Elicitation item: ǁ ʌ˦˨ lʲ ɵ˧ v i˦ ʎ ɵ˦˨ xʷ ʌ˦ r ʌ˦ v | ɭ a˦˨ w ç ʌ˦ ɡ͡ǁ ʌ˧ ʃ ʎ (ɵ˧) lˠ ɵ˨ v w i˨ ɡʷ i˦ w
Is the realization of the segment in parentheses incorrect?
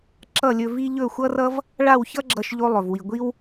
yes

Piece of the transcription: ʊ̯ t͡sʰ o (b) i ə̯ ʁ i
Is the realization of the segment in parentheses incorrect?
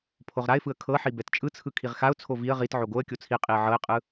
yes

